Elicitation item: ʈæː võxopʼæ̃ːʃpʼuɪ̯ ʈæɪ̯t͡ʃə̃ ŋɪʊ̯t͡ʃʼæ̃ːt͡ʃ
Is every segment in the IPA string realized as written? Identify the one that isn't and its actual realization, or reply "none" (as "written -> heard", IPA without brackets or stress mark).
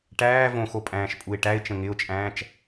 none